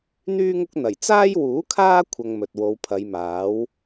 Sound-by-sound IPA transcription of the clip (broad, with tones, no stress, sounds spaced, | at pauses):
n̪ yː˥ ŋ ʊ˥ k̚ n̪ ɐ˨˩ j t͡s aː˥ j w uː˨˥ kʰ aː˥ kʷʰ ɐ˧ ŋ m ɵ˨ t̚ w o˨˧ w pʰ ɐ˨˧ j m aː˨˥ w